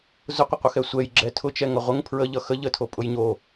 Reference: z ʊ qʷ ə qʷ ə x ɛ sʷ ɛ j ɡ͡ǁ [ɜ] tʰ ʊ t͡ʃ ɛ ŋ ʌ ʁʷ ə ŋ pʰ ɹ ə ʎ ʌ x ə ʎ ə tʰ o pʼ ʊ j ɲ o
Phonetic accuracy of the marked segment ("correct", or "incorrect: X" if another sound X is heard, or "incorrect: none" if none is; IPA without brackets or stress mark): incorrect: ɛ